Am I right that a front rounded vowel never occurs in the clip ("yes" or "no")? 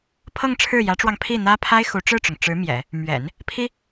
yes